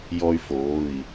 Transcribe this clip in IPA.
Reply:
j ɔ˦ y̯ f oː˩˧˩ i̯

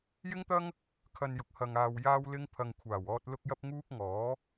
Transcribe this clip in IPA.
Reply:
j ɪ˥ ŋ t̪ ɐ˥ ŋ | kʰ ɐ˧ n j ʊ˨ k̚ h ɐ˨ ŋ aː˨ w j aː˥ w l ɪ˥ ŋ pʰ ɐ˨ ŋ kʷʰ aː˨˩ w ɔː˧ t̚ l ʊ˥ k̚ j ɐ˥ p̚ ŋ uː˥ k̚ ŋ ɔː˨˥

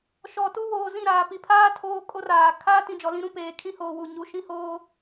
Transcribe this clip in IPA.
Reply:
ʃ ɔ˨ t u˦ w oː˨ z ĩ˦˨ ɾ aː˨ p i˨ pʰ aː˦ tʰ oː˦ kʼ o˦ r aː˨ kʰ aː˦ t ĩ˨ d͡ʒ ɔ˨ l ĩ˦ ɾ ũ˦ p eː˨ kʰ ĩ˦ h oː˨ w u˦˨ ɲ u˨˦ ʃ ĩ˦ h oː˦

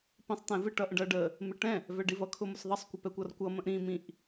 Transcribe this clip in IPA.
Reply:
p ĩ sˤ t̪ ɛ̃ v ɪ ʈ ʌ ʔ ə̃ ɖ ʌ ɖ ə | m ɪ ʈ ɛ̃ | v ɛ ɖ i v ʌ kʰ ʊ m ʊ s ðˤ ʌ sˤ kʷ ə p ɛ kʷ ʌ r kʷ ʌ m ə̃ ʔ ɾ ĩ m ĩ ʔ

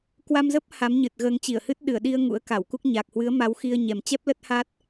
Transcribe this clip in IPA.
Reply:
k w a˧ m z ə˦˥ p̚ h a˨˦ m ɲ ɨ˨˩ t̚ ɣ əː˨˦ ŋ t͡ɕ i˧˩ ə̯ h ɨ˦˥ t̚ ɗ ɨ˧˩ ə̯ ɗ i˧ ə̯ ŋ ṵ˧˥ ə̯ k a˧˩ w k u˦˥ k̚ ɲ a˨˩ k̚ h w ɨ˨˦ ə̯ m a˨˦ w x i˧ ə̯ ɲ ɛ˨˩ m t͡ɕ ɛ˦˥ p̚ l ə˦˥ t̚ h a˦˥ t̚

